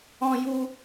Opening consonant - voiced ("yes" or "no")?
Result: yes